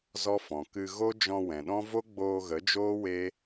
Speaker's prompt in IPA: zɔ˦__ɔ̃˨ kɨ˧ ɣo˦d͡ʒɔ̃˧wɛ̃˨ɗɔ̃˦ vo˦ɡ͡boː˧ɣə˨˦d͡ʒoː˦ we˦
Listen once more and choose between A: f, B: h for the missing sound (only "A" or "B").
A